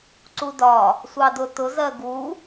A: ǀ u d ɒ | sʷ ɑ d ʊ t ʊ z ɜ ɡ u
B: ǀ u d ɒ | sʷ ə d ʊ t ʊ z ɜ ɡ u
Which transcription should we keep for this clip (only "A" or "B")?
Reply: A